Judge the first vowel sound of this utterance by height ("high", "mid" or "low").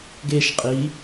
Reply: mid